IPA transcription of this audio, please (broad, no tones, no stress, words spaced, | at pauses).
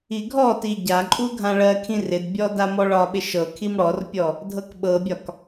iɡʱɔti ɟaǃʼu ɡʱãɭɜkʰĩ rɪdbʲɔ damɔɭɒɓɪ ʃɤkʰim ɽɔrpʲɔ | dʱɤkɓɤbʲɒk